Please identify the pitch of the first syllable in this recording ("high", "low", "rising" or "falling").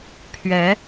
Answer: rising